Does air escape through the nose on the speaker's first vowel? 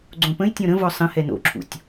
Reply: yes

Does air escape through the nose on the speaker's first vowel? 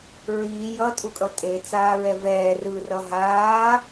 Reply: no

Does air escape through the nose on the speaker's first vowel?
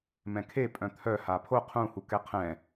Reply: yes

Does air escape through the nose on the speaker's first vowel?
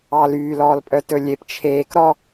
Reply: no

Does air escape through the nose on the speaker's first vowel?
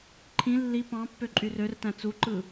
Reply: yes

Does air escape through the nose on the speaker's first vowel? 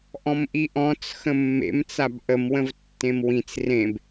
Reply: yes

